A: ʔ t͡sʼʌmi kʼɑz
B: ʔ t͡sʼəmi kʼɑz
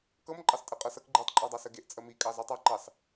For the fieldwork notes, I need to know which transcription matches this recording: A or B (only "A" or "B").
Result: B